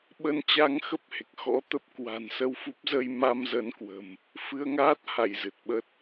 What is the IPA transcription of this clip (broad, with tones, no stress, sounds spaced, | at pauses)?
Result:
ɓ ə˧ n t͡ɕ a˧ ŋ x ə˦˥ p̚ h e˨˩ k̚ x ɔ̰˧˥ t̪ ə˦˥ p̚ k w a̤˨˩ n s ə˧ w f u˦˥ p̚ z ə˧ j m a˧ m z ə˨˦ n k w ə̤˨˩ m | f ɨ˧ ə̯ ŋ aː˦˥ t̚ h a˧˩ j z ɨ˨˩ t̚ ɓ ə˦˥ t̚